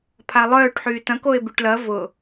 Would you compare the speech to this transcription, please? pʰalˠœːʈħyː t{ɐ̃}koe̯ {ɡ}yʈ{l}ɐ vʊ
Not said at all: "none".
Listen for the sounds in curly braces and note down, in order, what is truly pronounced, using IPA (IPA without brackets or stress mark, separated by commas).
ɐ̃, b, l